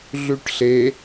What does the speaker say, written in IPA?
ɮ ʉ ʈ ɬ e

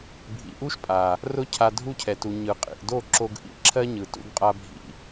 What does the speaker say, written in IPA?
bʱ ḭ˨ ʔ u˦ ʃ pʼ a˨ | r ʊ˧ cʰ a˧ dʱ u˦˨ cʰ ɛ˨ t u˨ ɲ ɯ˨ qʼ ḭ˨ ʔ d o˦˨ ǁ o˧ ɡ ʔ ḭ˧ ǁʰ ɜ˦ ɲ ɯ˨ t ṵ˦˨ ɡ qʼ a˧ bʱ ḭ˦˨

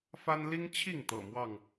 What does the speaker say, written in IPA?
f a˦ n l i˦ ŋ t͡ɕʰ i˥˨ ŋ t̪ ɤ̰˨˩ m w ɑ˥˨ ŋ

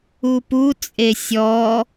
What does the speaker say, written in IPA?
u p u t͡sʼ e sʲ ɔ

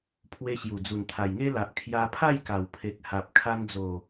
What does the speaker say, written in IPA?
pʰ w e˧ ɕ j u˨˩ d͡z u˨˩ n t̪ʰ a˨˩ j ŋ e˦ l a˨ ʔ kʰ j a˧ pʰ a˥˧ j k a˨˩ w pʰ e˨ k̚ h a˨ p̚ kʰ a˧ n d͡z o˨˩

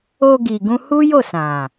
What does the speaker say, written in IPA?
o˧ ɡ i˨ ɡ ũ˧ h u˦ j o˦˨ s ã˨

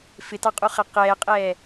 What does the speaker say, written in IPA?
f ɪ t ɑ qʼ u χ æ q ɛː qʼ ɛː

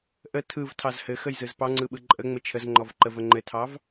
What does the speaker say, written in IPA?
ʔ ə tʰ ɯ v tʰ ɑ z h ɘ x ə j z ɯ z p ɑ ŋ͡ǀ ɯ ɓ ɯ ǃʼ ə ŋ͡m ɘ t͡ʃʰ ə z ŋ͡ǃ ɔ v ǃ ə v ə ŋ͡ǃ ɘ tʰ ɑ v

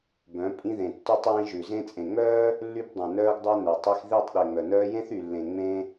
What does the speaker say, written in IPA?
b œ̃˨˦ pʼ ĩ˧ ð ẽ˨ tː y˧ tˤ j ĩ˧ ʒ ʉ˨ z ẽ˧ t͡sʼ ẽ˨ ŋ͡m œː˦ | lː y˧ b dˤ œ̃˨ n œː˧ ɡ dˤ œ˧ n œ˨ tˤ i˧ x ð i˦˨ tˤ ɗ e˨ ŋ͡m œ˨ n œː˧ j ẽ˦ θ y˨ lː ẽ˨ ŋ͡m ẽ˦

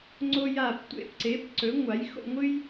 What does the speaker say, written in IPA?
ŋ͡ǀ o˥ j a˥˧ p tʷ ḛ˥ p ǀ e˨˥ p ǀ ɵ˨˥ ŋʷ a˨˥ j x o̰˥˧ ŋʷ ɨ˥ j

